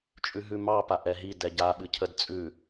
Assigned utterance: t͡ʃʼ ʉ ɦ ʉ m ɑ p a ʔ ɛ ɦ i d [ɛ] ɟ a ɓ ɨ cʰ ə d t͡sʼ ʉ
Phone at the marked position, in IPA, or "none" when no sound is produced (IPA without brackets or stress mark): ɛ